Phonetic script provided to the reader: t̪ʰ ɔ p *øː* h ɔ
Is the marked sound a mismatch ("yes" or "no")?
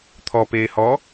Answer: yes